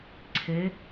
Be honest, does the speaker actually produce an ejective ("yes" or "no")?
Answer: no